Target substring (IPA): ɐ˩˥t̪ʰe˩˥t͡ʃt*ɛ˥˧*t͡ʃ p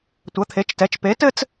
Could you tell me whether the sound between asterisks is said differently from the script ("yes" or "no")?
yes